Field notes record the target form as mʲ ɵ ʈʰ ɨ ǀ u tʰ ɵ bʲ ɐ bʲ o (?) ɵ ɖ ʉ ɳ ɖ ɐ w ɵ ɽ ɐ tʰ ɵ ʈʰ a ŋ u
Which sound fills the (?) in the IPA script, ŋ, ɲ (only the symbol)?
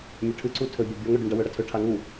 ŋ